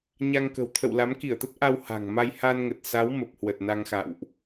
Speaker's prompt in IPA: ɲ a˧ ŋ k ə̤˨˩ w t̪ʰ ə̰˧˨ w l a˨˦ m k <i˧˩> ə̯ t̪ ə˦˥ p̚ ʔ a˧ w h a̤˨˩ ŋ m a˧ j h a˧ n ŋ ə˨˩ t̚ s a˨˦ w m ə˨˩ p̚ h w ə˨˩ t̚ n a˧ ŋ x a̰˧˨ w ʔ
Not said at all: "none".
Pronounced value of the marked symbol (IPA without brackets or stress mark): i˧˩